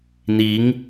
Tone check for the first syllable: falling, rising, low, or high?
rising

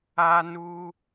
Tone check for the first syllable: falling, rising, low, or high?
high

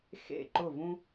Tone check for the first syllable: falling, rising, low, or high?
falling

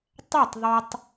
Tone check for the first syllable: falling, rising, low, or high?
falling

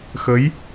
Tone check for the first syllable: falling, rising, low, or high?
rising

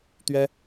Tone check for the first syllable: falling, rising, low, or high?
high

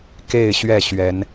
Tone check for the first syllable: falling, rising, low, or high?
falling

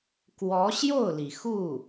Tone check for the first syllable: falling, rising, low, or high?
rising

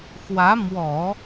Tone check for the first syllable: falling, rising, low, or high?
rising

